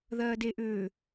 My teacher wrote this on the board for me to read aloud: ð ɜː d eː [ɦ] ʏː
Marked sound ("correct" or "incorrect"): incorrect